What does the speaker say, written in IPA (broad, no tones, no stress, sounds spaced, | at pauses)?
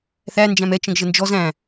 θ æ n d͡ʒ æ̃ m ɛ t͡ʃ ə̃ ɡ ʒ ə n d͡ʒ ɔ z æ̃